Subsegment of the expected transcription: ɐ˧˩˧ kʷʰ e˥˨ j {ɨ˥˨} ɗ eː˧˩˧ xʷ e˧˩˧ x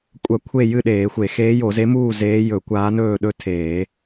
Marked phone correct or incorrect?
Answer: correct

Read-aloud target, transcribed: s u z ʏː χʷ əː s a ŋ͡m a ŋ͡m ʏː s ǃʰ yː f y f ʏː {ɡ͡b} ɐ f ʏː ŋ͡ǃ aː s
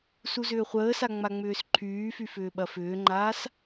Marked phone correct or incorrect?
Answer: incorrect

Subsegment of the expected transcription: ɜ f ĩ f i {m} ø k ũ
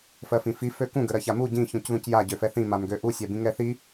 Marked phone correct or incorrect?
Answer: incorrect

